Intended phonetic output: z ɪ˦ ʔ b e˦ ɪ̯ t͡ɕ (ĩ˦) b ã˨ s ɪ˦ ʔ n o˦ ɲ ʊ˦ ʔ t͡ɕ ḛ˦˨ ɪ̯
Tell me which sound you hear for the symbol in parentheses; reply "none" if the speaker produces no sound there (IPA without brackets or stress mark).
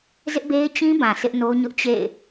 ĩ˦